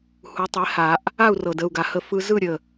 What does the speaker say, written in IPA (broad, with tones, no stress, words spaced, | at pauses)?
hu˩˥tˤe˩˥ha˨˩˦ʔ | a˥˨u̯rɤ˨˩d ə˥˨u̯ɡa˧hə˥˨ fɯ˧zɯ˥˨ɾʲə˨˩